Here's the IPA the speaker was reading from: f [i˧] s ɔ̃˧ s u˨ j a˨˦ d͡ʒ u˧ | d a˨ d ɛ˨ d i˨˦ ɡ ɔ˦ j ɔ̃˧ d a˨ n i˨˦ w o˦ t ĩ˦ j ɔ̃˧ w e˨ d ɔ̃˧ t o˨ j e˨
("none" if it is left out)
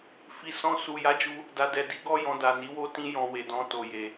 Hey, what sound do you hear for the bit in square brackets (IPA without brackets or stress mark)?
i˧